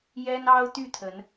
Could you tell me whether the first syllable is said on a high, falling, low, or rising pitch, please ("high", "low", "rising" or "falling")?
high